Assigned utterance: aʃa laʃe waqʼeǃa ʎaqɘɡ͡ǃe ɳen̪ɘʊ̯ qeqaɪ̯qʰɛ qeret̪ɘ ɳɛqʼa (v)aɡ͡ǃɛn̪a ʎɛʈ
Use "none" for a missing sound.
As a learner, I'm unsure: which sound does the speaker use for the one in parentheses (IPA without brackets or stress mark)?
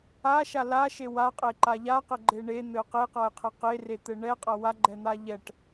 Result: w